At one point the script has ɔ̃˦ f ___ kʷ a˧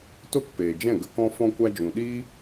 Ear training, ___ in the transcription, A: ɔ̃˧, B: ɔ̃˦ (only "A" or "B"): A